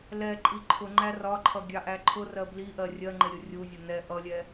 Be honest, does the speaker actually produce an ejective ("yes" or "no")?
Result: yes